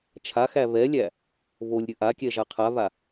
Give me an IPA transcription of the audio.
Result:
t͡ʃʰ a x æ β ɛ lʲ æ | β o lʲ ɾʲ ɵ ʔ a kʲ ɛ ʒ a qʰ a β a

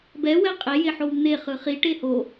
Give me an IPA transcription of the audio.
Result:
b ɛ w ɛ qʼ e j e ħ o w n̪ e χ ɯ χ i ʈ e h o

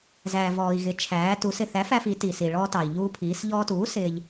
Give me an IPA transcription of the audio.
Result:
z æː˩ v ɔː˩ i̯ ɣ ɪ˩˧ t͡ʃʰ æː˩˧ t u˩˧ s ɪ˩ θ æ˩˥ f æ˧ f i˩˧ t i˩ s i˩ ɭ ɔː˧ t ɑ˩ i̯ ʎ uː˧ pʰ iː˩˧ s ʎ ɔː˧ t uː˩˥ s ɪː˧ ʎ

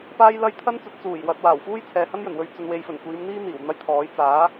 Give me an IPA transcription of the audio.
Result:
p aː˧ j l ɐ˧ j t̪ʰ ɐ˥ n t͡s ɵ˨˥ t̚ t͡s uː˨˩ j w ɐ˨ t̚ w aː˨˩ w f uː˥ j t͡sʰ ɛː˨ h ɐ˥ n j ɵ˨˩ n w ɵ˧ ɥ t͡s ɵ˨ n w e˨ j f ɵ˨˩ n kʷ iː˨˧ m n̪ iː˥ n̪ iː˨˩ w n̪ ɐ˥ j t̪ʰ ɔː˨˥ j t͡s aː˨˥

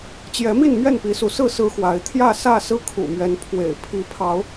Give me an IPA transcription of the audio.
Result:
t͡ɕ j ɛ˨˦ m i˥˨ n m ɥ ɛ˥˨ n p i˨˦ s u˨˦ s ɹ̩˥˨ s ɹ̩˦ x w a˨˦ ɪ̯ t̪ʰ j ä˥˨ s ä˥˨ s ɹ̩˦ kʰ ṵ˨˩ m ɥ ɛ˨˦ n pʰ w ḛ˨˩ ɪ̯ pʰ i˨˦ pʰ ɑ˨˦ ʊ̯

